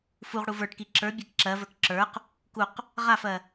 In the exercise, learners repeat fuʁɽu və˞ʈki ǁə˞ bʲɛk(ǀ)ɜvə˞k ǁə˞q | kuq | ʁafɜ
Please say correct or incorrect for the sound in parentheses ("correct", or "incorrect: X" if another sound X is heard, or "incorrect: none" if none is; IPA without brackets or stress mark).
incorrect: ǁ